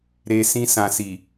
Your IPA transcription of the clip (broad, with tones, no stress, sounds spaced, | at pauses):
ɾ e˦ s ĩ˧ s ã˨ s i˨